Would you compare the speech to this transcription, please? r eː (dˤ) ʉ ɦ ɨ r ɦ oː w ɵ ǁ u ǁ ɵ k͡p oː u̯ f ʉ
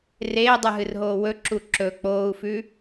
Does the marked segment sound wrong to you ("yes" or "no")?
no